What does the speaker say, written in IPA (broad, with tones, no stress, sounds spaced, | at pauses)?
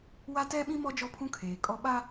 w a˦ t ɛ˦ ɓ ĩ˦ m ɔ˦ d͡ʒ ɔ˦ pʰ ũ˦ kʰ eː˨ kʼ ɔ˦ ɓ a˦